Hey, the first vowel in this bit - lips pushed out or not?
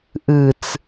no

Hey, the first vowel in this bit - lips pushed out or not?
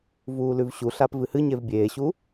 yes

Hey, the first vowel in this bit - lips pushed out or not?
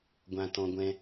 no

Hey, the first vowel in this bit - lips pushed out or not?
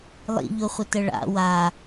no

